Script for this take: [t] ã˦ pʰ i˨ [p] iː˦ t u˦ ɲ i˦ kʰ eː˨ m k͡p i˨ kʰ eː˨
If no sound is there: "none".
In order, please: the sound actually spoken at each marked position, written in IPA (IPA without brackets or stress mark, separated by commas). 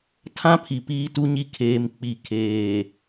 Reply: tʰ, p